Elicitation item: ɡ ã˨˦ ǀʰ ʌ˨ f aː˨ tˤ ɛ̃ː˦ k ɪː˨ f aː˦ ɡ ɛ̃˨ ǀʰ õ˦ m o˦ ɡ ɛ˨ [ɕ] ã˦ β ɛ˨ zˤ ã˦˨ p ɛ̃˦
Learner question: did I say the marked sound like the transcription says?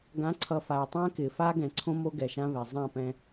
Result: no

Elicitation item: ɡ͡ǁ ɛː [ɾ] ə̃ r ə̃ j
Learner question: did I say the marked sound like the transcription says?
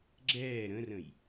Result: yes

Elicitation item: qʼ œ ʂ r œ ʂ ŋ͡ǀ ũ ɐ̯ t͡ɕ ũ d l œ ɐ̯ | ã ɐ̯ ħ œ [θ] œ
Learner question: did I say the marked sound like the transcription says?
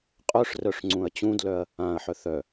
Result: yes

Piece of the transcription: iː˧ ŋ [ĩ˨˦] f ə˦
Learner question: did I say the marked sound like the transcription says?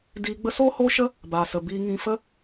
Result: no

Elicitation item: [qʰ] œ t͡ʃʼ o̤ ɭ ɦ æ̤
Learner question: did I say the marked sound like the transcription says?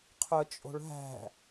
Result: yes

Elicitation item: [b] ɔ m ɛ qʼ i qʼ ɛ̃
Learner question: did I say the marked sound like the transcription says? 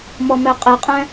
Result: no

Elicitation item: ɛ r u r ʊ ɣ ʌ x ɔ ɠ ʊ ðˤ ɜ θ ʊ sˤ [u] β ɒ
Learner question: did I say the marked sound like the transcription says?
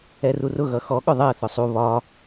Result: yes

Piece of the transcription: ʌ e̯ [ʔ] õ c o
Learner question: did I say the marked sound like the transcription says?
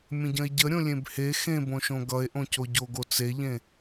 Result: yes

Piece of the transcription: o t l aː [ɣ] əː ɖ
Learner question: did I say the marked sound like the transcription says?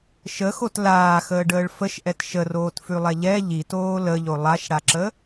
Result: no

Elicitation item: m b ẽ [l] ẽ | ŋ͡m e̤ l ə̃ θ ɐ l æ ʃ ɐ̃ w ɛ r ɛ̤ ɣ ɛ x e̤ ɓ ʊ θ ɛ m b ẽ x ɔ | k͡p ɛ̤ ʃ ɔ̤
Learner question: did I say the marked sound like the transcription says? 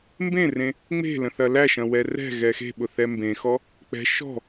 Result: no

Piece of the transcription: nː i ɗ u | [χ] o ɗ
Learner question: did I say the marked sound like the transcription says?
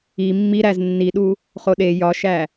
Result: yes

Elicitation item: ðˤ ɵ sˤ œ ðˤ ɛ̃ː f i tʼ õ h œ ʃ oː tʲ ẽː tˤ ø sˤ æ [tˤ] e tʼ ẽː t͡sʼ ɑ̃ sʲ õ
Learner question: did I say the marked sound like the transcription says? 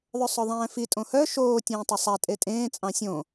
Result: no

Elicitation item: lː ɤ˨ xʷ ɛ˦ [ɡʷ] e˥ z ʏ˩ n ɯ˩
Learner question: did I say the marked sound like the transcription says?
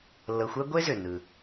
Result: yes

